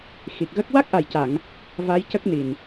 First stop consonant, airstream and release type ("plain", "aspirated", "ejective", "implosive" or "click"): plain